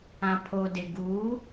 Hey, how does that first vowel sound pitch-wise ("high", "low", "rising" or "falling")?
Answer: low